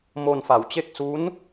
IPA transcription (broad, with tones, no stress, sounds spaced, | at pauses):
m o˧ n f a˩˦ w t͡ɕ e˥˩ k̚ s u˦˥ n